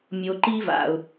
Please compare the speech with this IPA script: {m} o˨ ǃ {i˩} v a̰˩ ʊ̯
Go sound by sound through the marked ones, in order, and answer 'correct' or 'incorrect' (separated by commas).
incorrect, incorrect